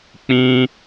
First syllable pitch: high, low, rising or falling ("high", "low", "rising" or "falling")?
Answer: high